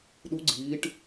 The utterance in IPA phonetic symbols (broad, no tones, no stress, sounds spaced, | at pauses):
ɗ u ɡ͡ǀ iː ʈ